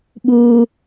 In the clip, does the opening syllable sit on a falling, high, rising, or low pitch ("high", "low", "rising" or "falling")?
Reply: high